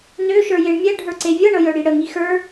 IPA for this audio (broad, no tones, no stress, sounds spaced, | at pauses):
n ø ʃ ə˞ j e ɳ mʲ ɛ ɖʱ ə˞ ǀ e vʲ ɤ ɳ ɤ j œ ɽ i ɽ ə ŋ i x ə˞